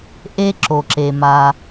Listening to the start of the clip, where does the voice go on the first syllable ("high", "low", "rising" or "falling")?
high